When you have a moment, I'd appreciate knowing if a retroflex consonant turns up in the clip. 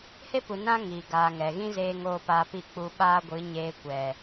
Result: no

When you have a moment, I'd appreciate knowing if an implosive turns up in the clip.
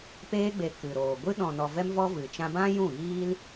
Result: yes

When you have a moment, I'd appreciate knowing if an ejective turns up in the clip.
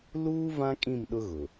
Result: yes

